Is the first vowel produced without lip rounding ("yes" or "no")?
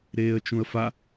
yes